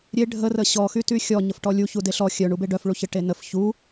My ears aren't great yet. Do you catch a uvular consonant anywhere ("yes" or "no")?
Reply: no